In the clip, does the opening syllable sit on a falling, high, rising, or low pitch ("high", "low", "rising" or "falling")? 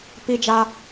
high